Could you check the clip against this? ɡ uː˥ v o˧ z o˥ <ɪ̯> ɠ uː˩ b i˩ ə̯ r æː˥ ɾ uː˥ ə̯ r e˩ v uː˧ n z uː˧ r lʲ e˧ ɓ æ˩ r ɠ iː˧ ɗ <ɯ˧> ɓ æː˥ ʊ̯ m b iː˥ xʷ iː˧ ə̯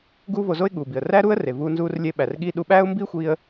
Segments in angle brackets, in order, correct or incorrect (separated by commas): correct, incorrect